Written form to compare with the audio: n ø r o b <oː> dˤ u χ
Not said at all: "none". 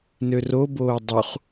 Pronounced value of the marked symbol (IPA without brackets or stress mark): oː